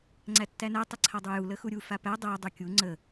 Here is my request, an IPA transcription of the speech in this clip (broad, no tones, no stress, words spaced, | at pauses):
ŋ͡ǀætːænæ tˤəǀʰadˤuju ləxuɾʲu fapæ dˤæ dˤukʲu ŋ͡ǀə